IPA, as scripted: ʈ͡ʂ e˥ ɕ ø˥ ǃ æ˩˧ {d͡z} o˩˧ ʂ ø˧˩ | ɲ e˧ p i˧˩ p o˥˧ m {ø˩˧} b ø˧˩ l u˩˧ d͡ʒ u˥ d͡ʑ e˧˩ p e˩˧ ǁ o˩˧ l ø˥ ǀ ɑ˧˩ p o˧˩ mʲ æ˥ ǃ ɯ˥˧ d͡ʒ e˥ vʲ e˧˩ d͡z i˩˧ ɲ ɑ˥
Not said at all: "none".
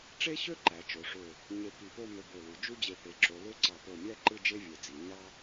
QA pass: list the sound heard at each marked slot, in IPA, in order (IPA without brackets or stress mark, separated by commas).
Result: t͡ʃ, ø˧